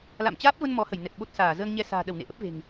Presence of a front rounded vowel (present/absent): absent